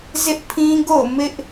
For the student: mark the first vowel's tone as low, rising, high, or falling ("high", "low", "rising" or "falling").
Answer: high